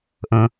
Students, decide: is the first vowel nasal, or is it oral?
nasal